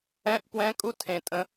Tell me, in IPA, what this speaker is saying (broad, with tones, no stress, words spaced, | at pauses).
ɛ̃˧˥˧ʔpwɛ̃˧˥˧ kʼu˥tʰẽ˨˩tʼə̃˨˥